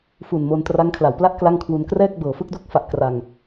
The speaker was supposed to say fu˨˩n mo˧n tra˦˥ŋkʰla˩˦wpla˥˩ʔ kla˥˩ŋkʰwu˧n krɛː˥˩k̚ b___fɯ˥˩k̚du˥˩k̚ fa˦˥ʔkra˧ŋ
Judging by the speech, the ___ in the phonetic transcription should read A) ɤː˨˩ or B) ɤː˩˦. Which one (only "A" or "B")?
A